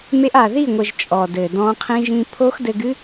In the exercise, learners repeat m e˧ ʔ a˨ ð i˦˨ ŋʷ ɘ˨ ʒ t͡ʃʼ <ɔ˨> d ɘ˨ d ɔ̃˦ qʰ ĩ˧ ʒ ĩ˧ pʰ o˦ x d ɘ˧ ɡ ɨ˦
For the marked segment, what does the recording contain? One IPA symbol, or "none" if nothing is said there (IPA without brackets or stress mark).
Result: ɔ˨